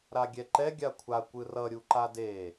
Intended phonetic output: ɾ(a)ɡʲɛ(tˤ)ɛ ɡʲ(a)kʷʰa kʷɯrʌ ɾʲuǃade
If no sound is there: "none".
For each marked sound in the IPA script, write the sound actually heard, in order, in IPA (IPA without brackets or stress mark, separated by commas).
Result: a, ǃ, a